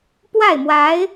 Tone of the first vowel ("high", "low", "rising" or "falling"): falling